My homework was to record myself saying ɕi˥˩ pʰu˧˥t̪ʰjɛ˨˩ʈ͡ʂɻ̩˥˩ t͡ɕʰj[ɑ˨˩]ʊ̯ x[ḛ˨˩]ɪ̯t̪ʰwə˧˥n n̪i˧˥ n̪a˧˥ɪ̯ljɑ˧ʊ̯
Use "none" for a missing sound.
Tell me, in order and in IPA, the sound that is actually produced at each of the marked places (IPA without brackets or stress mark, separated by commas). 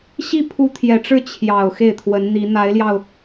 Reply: ɑ˨˩, e˥˩